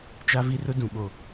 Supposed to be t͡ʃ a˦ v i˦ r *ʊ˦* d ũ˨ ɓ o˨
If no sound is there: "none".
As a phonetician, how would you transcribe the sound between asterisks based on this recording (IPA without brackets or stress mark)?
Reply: ʊ˦